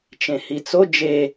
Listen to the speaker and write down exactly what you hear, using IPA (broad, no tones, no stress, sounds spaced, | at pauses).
t͡ʃ ẽ h i t͡s o d͡ʒ e